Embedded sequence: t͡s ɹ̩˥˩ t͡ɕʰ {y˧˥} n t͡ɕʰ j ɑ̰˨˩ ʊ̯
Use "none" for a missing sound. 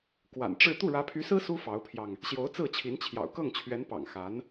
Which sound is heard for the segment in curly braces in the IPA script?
i˧˥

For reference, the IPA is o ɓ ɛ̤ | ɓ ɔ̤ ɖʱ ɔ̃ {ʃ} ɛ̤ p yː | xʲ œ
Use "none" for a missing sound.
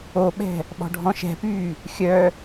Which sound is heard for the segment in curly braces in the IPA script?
ʃ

